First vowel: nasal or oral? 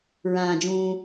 nasal